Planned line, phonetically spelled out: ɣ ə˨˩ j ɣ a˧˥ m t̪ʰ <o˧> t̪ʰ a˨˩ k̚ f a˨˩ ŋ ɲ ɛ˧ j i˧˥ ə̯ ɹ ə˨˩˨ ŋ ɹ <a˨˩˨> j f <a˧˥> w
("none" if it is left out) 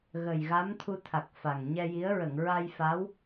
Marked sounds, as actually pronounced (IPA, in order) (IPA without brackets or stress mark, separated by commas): u˧, a˧, a˧˥